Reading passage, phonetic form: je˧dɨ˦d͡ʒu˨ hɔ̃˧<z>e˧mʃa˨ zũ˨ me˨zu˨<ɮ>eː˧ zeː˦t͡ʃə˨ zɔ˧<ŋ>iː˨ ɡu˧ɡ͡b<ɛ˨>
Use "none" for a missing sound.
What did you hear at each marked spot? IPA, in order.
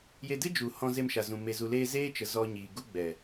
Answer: z, l, ɲ, ɛ˨

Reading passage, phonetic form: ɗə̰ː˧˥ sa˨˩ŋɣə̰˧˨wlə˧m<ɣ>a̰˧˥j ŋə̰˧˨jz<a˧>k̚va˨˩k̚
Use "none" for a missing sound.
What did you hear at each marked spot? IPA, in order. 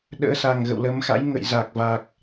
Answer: x, a˨˩

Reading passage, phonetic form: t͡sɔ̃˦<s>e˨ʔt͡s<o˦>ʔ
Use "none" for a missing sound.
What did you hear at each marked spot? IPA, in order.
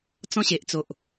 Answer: ɕ, o˨

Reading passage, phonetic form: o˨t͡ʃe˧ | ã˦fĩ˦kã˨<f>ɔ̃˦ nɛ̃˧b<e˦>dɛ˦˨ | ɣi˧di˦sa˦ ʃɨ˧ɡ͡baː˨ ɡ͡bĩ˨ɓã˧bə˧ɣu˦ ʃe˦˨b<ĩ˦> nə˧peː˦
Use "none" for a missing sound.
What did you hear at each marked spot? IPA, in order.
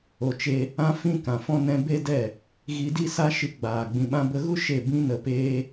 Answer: f, e˦, ĩ˦

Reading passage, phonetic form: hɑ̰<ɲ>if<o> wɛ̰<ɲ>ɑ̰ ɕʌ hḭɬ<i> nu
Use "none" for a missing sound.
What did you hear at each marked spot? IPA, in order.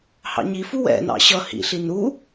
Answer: ɲ, u, n, i

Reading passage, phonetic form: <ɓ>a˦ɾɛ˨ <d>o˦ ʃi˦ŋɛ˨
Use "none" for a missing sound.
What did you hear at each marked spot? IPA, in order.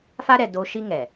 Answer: f, d

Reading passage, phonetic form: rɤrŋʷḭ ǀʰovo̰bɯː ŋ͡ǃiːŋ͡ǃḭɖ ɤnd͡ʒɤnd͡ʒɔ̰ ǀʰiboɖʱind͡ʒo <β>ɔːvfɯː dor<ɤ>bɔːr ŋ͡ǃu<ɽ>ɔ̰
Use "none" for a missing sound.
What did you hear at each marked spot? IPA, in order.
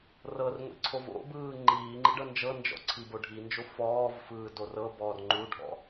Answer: f, ɤ, ɖʱ

